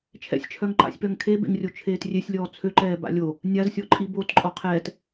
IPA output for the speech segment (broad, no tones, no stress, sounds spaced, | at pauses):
t͡ʃʰ ɛ̰ sʲ t͡ʃʰ œ ŋ ǃ a̰ sʲ p œ ŋ kʰ e b ḛ ŋ rʲ o t͡ʃʰ eː t rʲ e sʲ lʲ ɔː t͡sʰ ø ǃ ɛː b a̰ lʲ o | nʲ a z sʲ ɔ ǃʼ i b o t ǃʼ ɔ qʰ ɛː t